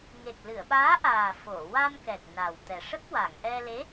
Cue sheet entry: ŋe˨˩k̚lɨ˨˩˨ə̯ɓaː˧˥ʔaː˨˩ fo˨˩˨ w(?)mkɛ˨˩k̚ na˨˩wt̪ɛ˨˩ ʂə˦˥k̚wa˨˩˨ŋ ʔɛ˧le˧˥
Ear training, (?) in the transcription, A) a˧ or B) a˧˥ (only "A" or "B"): A